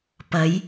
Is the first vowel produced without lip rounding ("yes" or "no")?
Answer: yes